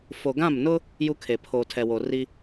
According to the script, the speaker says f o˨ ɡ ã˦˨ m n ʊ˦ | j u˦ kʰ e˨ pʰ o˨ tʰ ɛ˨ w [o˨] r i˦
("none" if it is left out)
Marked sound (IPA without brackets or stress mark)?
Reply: o˨